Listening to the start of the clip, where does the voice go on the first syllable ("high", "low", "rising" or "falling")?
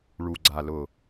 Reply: low